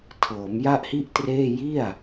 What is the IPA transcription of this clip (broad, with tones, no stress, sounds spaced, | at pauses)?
tʰ ɤː˩˦ m j a˥˩ ʔ h i˥˩ ʔ t r eː˥˩ j i˥˩ a̯